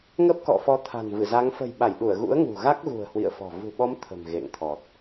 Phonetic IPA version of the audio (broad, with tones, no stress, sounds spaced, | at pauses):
ŋ ə˦˥ p̚ k ɔ̰˧˨ f ɔ˨˦ t̪ʰ a̤˨˩ n v ɨ˧˩ z a˨˦ ŋ f ə̤˨˩ j ɓ a˧˩ j ɗ u˧˩ ə̯ ɣ ṵ˧˥ ə̯ ŋ ṳ˨˩ ɣ a˦˥ k̚ ɣ ṳ˨˩ ə̯ h w ḭ˧˨ ə̯ f ɔ̤˨˩ v ṳ˨˩ ɓ ɔ˨˦ m t̪ʰ ə̤˨˩ m ɣ ḛ˧˨ ŋ t̪ʰ ɔ˨˩ t̚